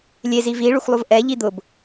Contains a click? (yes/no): no